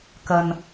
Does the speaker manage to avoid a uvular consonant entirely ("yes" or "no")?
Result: yes